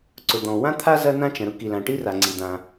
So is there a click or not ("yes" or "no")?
yes